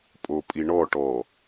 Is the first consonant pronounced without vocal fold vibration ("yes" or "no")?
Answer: yes